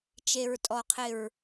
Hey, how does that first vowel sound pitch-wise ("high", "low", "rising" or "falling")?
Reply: low